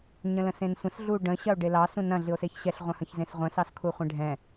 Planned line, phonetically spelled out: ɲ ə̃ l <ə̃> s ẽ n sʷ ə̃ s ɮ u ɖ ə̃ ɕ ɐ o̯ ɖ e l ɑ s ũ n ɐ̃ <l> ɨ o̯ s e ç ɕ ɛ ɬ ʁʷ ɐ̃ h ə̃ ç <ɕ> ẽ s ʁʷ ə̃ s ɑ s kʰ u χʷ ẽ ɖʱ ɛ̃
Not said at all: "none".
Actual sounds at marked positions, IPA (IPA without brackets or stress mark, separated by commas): ə̃, ɮ, z